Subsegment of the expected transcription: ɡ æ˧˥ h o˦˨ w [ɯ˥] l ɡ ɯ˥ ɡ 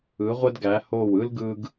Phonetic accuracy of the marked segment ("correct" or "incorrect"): correct